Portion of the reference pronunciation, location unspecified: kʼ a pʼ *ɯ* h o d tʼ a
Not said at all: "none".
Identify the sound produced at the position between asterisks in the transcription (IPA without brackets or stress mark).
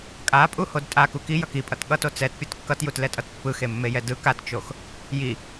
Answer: u